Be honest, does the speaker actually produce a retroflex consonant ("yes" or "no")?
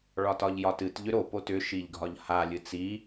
yes